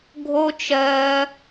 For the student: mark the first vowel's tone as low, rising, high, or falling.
high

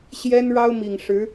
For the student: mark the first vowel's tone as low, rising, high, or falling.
high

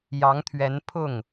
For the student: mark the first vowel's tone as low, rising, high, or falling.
rising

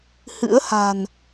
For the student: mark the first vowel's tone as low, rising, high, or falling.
rising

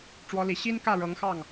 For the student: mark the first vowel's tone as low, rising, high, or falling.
rising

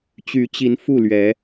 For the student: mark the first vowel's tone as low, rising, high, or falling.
rising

